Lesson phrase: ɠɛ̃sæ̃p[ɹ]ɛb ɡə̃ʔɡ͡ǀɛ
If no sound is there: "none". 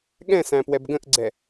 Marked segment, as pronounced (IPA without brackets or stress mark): w